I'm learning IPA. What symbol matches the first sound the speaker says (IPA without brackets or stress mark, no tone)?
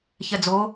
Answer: ç